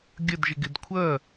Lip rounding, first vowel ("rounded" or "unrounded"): unrounded